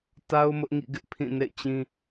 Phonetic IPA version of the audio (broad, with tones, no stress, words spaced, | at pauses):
ta˦ʊ̯ mʊ˦ʔŋḭ˦˨ɡɪ˦ʔ pʰĩ˦˨nḛ˦˨ɪ̯t͡ɕĩ˦